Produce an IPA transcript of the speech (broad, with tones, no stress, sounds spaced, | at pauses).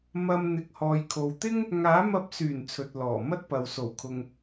m ɐ˨ m n̪ ɪ˨ k̚ h ɔː˨ j kʰ o˨ w t̪ ɪ˥ ŋ | ŋ aː˨˥ m ɐ˧ p̚ s yː˨˩ n t͡sʰ ɵ˨ t̚ l ɔː˨˩ m ɐ˥ t̚ p ɐ˨ w s o˨˩ w kʰ ʊ˨ ŋ